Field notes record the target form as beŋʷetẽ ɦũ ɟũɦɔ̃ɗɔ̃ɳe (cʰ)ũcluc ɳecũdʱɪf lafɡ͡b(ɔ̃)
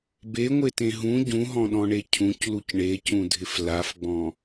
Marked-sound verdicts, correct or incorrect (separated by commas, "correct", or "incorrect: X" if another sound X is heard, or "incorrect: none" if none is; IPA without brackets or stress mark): correct, correct